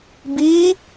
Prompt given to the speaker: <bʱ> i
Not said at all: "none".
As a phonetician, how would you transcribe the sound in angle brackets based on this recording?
b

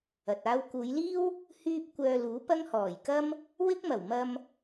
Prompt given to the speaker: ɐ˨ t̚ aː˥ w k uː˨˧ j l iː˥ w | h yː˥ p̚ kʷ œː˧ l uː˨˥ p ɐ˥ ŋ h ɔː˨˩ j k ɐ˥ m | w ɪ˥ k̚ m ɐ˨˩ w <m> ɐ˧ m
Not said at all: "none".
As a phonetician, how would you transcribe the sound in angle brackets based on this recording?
m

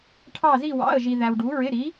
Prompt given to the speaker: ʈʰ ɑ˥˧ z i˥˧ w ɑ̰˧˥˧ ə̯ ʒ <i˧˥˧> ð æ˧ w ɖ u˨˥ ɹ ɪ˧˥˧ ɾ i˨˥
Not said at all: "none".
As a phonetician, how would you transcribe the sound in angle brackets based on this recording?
i˧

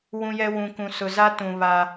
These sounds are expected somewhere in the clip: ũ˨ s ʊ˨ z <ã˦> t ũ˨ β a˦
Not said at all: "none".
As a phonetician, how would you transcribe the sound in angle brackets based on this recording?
a˦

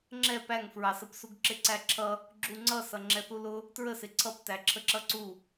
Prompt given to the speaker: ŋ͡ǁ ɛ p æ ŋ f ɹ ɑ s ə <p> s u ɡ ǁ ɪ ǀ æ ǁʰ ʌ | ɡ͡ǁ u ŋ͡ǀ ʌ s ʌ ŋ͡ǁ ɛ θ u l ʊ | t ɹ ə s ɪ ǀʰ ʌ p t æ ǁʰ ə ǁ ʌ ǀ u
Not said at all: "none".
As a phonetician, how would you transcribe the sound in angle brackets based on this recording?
p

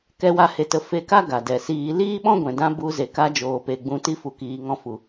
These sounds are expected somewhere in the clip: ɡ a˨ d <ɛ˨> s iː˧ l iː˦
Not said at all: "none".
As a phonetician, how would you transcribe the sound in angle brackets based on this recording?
ɛ˨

